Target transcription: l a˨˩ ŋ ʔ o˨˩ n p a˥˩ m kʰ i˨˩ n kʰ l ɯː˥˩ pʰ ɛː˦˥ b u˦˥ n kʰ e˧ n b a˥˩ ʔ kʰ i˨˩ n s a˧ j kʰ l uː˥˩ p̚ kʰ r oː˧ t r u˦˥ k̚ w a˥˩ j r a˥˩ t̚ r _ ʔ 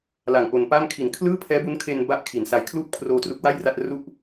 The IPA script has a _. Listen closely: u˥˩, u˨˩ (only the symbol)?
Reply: u˥˩